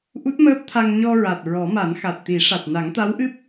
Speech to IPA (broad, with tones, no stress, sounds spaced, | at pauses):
ʔ u˦˥ t̚ m əː˦˥ p̚ t̪ʰ a˧ ŋ ɲ ɔ˧ ɹ a˨˩ t̚ ɹ ɔ˨˩˦ m a˨˩˦ n x a˨˩ t̚ t̪ i˨˩˦ ʂ a˨˩ t̚ n a˨˩˦ ŋ t̪ a˧˥ w ʔ ɨ˦˥ p̚